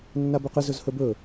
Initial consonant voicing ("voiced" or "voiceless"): voiced